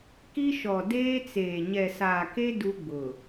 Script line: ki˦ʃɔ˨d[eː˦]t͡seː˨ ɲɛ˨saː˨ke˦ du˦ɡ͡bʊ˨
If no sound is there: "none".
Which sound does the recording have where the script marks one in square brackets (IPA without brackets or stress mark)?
eː˦